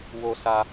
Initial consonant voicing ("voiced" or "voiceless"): voiced